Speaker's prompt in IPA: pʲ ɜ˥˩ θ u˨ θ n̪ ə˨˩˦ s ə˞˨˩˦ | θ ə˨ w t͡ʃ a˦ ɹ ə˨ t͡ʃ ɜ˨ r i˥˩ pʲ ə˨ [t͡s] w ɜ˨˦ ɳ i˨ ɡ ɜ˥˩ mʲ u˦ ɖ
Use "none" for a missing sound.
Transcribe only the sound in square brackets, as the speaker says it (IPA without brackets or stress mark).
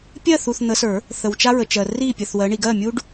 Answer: θ